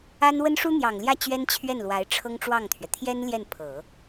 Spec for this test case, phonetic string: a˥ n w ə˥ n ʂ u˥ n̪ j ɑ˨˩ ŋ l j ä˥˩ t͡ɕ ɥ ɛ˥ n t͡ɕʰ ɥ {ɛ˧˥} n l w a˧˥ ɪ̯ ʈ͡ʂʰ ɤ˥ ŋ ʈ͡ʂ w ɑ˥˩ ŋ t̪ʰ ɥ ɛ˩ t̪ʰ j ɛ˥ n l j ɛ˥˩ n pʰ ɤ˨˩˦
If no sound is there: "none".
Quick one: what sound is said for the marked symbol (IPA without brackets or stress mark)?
ɛ˥˩